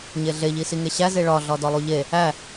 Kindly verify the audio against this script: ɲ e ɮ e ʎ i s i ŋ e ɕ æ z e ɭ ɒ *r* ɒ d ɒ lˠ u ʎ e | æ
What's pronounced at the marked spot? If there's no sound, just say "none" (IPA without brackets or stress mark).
ɮ